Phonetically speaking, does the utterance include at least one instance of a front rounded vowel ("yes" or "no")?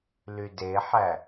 yes